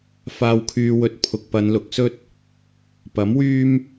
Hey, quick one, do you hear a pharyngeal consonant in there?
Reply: no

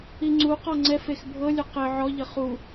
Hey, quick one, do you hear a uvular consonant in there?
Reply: yes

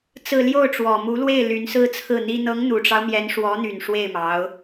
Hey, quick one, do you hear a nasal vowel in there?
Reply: no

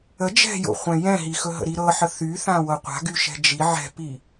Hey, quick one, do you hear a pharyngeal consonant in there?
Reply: yes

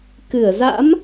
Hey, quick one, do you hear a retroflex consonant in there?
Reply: no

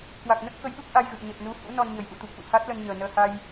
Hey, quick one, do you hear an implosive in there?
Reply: yes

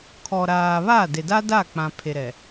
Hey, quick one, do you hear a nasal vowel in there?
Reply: yes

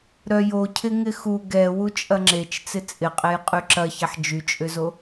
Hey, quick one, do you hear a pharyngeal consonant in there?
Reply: yes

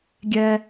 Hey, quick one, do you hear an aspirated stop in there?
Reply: no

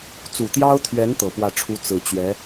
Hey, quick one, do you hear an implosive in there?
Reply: no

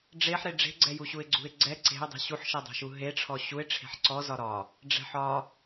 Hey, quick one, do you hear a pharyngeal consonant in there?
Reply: yes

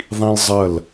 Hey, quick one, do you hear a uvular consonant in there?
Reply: no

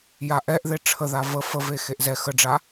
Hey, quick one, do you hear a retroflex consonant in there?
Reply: yes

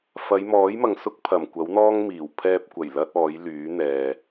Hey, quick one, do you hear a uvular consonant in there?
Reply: no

